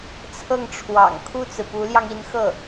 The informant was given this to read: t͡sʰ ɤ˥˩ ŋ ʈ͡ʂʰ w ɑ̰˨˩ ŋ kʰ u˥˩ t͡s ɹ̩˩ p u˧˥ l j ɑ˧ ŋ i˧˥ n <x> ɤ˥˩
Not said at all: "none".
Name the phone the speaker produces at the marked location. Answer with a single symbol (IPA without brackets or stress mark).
x